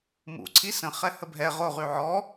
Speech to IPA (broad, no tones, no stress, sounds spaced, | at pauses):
m ṵ ǀʰ i s ə̃ χ ɛ h ə bʱ ɛ ʁ o ʁ y ʕ ɔ